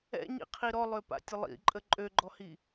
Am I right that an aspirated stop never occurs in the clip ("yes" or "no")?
no